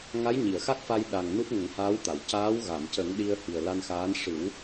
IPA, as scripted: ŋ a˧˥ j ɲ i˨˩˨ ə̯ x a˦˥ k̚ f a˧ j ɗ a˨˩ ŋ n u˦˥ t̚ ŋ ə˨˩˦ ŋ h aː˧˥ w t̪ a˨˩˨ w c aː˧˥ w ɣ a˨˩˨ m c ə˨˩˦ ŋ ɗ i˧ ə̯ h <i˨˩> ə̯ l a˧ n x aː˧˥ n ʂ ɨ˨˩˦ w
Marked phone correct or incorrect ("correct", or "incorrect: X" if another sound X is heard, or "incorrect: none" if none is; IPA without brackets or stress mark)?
correct